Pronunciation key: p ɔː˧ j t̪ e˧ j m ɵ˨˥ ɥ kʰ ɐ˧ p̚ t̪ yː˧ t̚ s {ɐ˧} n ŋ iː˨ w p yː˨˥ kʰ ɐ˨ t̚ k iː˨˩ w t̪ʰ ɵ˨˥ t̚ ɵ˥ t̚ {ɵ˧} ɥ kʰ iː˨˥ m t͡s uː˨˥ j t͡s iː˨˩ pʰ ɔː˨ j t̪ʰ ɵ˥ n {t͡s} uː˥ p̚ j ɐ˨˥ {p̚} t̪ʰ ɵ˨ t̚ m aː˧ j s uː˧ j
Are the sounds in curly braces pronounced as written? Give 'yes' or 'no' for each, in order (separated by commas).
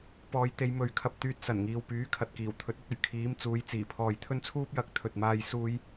no, no, no, no